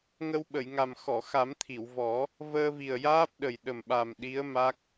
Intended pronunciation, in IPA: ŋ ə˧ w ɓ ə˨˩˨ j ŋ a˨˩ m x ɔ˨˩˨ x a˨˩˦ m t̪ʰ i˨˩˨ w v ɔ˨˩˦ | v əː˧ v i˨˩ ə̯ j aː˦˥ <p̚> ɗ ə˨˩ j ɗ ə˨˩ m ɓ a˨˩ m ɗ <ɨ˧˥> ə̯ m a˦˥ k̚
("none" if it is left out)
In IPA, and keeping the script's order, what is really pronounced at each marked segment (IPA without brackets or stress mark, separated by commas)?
p̚, i˧˥